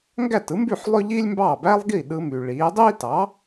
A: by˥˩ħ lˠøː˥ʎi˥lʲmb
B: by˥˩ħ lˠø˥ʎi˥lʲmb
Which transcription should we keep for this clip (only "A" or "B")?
B